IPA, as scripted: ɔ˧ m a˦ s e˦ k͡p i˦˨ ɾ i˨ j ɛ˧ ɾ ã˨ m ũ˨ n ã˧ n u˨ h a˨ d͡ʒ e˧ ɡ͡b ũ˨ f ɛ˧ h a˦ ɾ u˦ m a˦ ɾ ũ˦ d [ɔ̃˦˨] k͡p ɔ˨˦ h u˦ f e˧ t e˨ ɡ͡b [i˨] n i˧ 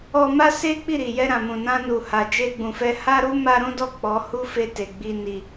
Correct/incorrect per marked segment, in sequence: incorrect: ɔ˦˨, incorrect: i˧

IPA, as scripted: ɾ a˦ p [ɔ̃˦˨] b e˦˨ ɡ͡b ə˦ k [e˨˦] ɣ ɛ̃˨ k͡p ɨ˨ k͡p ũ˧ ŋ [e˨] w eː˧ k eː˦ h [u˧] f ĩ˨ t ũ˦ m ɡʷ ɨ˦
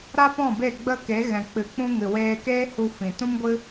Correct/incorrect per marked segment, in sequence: correct, correct, incorrect: ɨ˨, correct

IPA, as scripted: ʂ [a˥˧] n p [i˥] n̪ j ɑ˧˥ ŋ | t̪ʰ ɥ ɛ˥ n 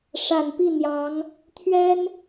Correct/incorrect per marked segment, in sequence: incorrect: a˨˩, incorrect: i˥˩

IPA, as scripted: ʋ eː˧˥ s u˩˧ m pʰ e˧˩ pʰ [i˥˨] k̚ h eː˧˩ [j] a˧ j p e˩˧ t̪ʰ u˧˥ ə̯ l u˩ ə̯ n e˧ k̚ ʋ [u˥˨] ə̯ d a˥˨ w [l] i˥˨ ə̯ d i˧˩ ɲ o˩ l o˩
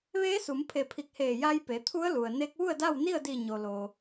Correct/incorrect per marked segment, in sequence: incorrect: i˧˩, correct, correct, incorrect: n

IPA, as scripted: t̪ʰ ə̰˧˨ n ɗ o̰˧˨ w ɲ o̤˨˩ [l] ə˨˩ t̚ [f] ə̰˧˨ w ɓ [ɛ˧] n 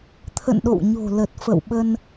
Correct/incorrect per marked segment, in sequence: correct, correct, incorrect: ə˧

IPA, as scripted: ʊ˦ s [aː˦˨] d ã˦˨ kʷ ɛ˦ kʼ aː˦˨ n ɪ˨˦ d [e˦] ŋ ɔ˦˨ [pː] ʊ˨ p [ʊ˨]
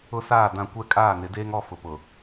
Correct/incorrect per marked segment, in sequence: correct, incorrect: eː˦, incorrect: f, correct

